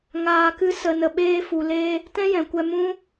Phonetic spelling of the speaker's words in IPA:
ŋ aː˨ k ɨ˧ s ə˨ n ə˨ ɓ eː˧ f u˨ l e˧ | t ɛ̃˦ j ɛ̃˨ kʷ ɛ˧ m ũ˦

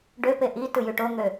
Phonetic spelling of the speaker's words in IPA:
ɖ ø p e ʔ i t ɯ j y ʈ o ŋ ø

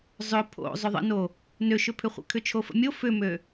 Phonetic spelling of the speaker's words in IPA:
zˤ ʏ pʰ o̰ zˤ ʏ ðˤ ə̰ n o | n ø ʃ ʏ pʰ ʏ χʷ ə̰ kʰ ʏ t͡ʃʰ o f ə̰ mʲ o f ʏ m ø

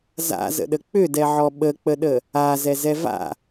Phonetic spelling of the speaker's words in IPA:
z a̰ z ə̰ ɗ ə k͡p ʏ d ɛ ʕ ɔ ɓ ə k͡p ə ɗ ə | a z ɛ z ɛ v a̰

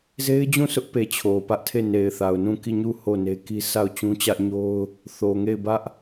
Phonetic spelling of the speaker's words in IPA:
z e˦ ɪ̯ d͡ʑ ũ˦˨ s ʊ˦ ʔ p e˨ t͡ɕʰ o˨ p ä˦ ʔ tʰ e˦˨ n e˨ ɪ̯ θ a˨ ʊ̯ n ũ˦˨ k i˦˨ ɲ u˦˨ h o˦˨ n e˦ k i˦ sʰ a˦˨ ʊ̯ t͡ɕ ũ˦ t͡ɕ ä˦ ʔ ɲ o˦ ʊ̯ | θ o˨ ŋ e˦˨ ɪ̯ b ä˦ ʔ

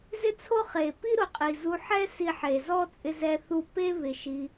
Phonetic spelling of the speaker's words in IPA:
z ɪ˦ t͡sʰ o˦ χ e˨ p i˦ ɾ ʊ˨ qʼ i˨ z u˧ ħ ɛ˦ s i˧ ħ e˨ z ɔ˦ t͡sʼ ɪ˦ z ɛ˦ θ u˦˨ p e˦ β ɪ˨ ʃ i˧

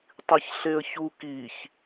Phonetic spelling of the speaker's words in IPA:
tˤ i ç ɬ e ə̯ ç u k i ç

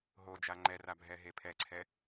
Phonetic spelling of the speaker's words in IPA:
ɦ o d͡ʒ a ŋ͡ǃ ɛ r a bʱ ɛ ɦ e pʰ ɛ ǀʰ ɛ

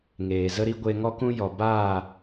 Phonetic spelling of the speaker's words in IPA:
ŋ eː˨ z ə˦ ɾ i˦ ɡʷ e˧ ŋ ɔ˦ k ũ˦ j ɔ˨ b aː˦˨

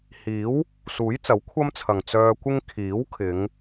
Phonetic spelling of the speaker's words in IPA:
h iː˨˥ w | s uː˨˥ j t͡s ɐ˨˥ w kʷʰ ɐ˥ m t͡sʰ ɐ˨ ŋ t͡s œː˧ kʷ ɪ˥ ŋ kʰ iː˨˥ w kʰ ɪ˨˧ ŋ

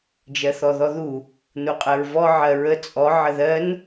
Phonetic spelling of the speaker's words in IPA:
d͡ʒ ɜ θ ɔ ð ɔ ð u | n u qʼ ɜ ɹ v ɔ ʕ ɜ ɹ ə t͡sʼ ɔ ʕ ə ð ɜ n

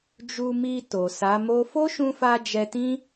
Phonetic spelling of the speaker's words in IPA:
d͡ʒ u˧ m i˧ t o˨ s a˨˦ m o˦ f o˦ ʃ ũ˧ f a˧ d͡ʒ ɛ˧ t ĩ˦

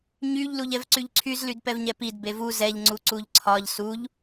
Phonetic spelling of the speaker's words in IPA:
ɲ y ʎ l u ʎ ɛ v ǀ y ʎ ǀʰ y z l y d p ɛ v ɲ ɛ p i d b e v u z ɛ ʎ ŋ͡ǀ u ǀ u ʎ ǀʰ ɒ ʎ s u ʎ

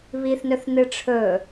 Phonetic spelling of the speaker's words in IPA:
β i θ n ɵ θ n ɨ ʈ͡ʂʰ ɵ

